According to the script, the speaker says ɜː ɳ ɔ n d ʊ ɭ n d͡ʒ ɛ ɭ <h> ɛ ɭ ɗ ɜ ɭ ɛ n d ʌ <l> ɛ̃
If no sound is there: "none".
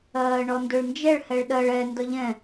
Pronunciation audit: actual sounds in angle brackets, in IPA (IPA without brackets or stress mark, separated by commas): h, ʎ